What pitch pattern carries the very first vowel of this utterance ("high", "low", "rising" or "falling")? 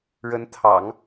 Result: rising